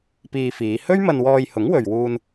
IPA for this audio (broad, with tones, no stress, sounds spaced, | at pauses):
p iː˧ f iː˨˧ h ɵ˥ ɥ m ɐ˧ n w ɔː˧ j h ʊ˨˥ ŋ w ɵ˨ ɥ w uː˧ n